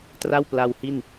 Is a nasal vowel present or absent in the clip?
absent